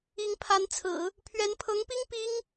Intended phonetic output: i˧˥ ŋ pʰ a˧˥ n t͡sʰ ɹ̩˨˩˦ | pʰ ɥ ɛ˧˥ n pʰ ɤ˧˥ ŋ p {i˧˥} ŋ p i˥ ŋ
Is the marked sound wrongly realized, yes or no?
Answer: yes